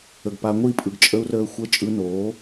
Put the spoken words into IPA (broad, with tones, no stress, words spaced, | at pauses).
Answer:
ə˨ɡpa˧ŋʷi˦˨pʼɯ˨ɡ t͡ʃʼə˦u̯rəː˦ xʷə˦ t͡ʃʼɯ˧noː˨˦